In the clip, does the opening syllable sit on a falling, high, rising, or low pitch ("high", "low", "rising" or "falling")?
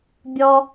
high